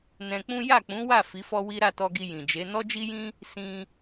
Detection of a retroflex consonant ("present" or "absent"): absent